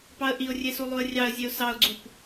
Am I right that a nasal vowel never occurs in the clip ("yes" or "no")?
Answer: yes